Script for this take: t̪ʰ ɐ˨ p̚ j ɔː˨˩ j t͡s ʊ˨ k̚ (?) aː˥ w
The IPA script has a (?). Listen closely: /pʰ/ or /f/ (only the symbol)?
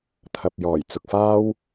f